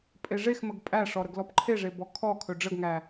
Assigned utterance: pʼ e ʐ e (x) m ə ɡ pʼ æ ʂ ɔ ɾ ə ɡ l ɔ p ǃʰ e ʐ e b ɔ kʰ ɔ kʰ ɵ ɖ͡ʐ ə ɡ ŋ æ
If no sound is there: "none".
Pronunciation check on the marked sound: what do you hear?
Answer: x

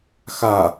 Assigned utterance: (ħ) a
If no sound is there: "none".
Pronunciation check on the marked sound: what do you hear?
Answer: x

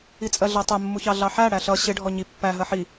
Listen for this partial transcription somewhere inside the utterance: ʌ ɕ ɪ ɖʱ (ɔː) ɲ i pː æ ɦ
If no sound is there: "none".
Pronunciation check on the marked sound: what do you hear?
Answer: ɔ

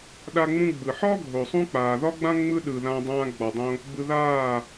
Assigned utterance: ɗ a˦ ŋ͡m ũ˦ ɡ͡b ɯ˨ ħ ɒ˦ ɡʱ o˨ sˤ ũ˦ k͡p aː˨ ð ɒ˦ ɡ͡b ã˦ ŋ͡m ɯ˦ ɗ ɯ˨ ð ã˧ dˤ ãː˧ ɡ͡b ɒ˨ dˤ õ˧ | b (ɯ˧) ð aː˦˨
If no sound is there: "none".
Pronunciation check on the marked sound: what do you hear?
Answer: ɯ˧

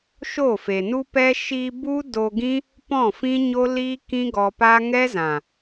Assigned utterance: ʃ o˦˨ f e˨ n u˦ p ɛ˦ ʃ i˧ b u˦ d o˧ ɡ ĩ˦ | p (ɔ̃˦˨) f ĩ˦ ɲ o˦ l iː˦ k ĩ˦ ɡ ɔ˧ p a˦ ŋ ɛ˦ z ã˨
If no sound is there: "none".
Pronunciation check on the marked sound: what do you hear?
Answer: ɔ̃˦˨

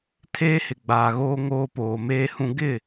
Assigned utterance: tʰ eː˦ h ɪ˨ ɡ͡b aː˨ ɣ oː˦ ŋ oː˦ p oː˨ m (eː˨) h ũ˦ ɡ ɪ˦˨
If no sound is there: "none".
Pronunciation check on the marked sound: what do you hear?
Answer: eː˦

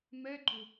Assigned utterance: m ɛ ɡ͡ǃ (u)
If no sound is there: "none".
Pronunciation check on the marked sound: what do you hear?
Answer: u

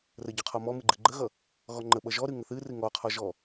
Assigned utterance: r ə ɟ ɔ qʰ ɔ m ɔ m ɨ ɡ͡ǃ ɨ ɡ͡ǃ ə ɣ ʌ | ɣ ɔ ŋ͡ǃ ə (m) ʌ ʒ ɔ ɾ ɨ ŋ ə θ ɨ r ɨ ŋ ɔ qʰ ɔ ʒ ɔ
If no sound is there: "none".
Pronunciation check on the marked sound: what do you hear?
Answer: ɓ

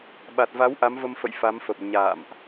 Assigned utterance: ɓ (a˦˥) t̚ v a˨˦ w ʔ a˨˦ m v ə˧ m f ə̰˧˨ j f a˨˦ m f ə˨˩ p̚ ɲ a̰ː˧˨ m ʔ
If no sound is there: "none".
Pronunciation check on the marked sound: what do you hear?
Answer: a˨˩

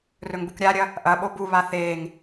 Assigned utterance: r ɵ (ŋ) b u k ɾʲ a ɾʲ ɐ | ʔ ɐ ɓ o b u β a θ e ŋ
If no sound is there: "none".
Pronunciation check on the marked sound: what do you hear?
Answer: ŋ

